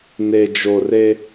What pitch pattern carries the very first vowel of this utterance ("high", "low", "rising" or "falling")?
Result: low